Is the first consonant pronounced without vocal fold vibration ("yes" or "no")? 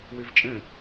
no